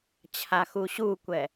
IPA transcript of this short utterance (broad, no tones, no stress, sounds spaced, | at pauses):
t͡ɕʰ a x u ɕ u kʷ ɛ